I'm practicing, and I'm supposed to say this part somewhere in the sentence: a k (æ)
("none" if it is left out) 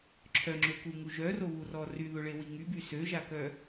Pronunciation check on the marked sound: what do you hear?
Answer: œ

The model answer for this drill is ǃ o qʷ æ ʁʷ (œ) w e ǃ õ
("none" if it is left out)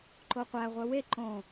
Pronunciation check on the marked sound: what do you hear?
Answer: œ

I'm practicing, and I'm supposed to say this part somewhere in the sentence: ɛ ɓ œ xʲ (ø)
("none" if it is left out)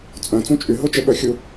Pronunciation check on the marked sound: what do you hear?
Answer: u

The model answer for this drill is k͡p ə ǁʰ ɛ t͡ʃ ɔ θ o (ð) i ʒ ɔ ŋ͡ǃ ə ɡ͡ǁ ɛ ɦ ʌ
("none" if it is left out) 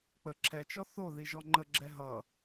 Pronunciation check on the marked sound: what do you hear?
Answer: ð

